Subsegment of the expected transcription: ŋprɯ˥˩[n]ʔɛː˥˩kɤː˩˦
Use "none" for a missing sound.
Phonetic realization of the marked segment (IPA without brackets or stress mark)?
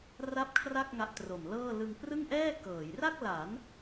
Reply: ŋ